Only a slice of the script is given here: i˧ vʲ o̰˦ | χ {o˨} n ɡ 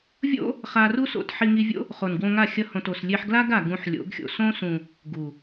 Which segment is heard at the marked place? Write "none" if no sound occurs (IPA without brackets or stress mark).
o˨